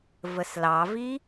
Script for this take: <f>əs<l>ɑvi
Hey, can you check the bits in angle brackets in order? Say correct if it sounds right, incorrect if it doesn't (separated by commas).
incorrect, correct